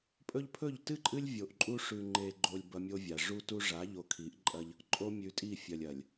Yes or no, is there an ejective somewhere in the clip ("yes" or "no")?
yes